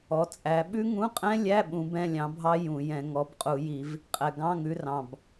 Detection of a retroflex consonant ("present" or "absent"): absent